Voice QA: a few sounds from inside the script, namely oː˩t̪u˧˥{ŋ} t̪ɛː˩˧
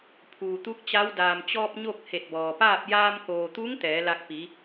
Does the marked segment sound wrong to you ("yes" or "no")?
no